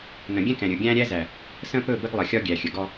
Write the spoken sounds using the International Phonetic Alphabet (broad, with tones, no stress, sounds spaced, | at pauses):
n ə̃˨ ɡʲ ɛ̃˦ k ɛ̃˨ ɾʲ ɵ˨ ɡʲ æ̃˦ ɾʲ æ˦ z æ˨ | s ə̃˦ p ɵ˦˨ b ə˦ ɡ lˠ ə˨ xʲ ɒ˦ ɡʲ æ˨ xʲ ə˨ ɡ ɔ˦